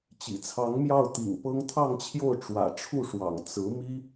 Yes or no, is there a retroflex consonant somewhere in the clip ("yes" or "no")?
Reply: yes